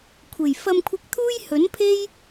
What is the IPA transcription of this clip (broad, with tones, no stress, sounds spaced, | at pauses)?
kʷʰ e˨˩ j f ɐ˧ m kʷʰ ɪ˧ k̚ t̪ʰ uː˥ j h ɵ˨˥ n pʰ e˥ j